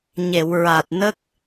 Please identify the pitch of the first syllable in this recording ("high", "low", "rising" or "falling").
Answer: low